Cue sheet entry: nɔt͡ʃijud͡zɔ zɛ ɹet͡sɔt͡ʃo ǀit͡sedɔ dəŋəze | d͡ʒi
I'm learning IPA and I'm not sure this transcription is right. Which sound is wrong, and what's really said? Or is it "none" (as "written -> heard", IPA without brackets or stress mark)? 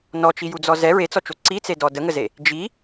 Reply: none